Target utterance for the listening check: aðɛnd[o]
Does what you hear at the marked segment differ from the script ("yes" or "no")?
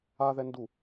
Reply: yes